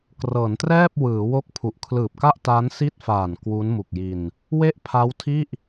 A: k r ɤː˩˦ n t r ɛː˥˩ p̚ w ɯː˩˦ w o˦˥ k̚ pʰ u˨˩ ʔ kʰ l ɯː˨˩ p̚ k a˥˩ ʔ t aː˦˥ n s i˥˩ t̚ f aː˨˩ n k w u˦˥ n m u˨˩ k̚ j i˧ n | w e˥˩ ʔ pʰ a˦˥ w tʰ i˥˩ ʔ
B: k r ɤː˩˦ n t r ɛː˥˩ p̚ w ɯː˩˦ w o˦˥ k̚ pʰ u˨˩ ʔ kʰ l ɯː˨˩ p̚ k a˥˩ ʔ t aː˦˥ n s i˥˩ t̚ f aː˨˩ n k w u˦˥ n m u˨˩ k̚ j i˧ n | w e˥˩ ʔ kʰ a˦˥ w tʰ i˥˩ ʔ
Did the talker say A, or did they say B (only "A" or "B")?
A